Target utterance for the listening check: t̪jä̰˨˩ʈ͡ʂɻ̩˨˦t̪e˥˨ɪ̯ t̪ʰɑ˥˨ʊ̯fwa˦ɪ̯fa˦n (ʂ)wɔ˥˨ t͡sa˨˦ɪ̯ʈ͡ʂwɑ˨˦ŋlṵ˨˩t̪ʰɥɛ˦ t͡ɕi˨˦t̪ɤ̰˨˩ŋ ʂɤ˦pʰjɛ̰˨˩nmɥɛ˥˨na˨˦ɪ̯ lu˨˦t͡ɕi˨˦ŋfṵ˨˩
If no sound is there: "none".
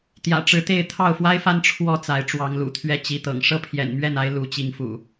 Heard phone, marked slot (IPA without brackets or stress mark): ʈ͡ʂʰ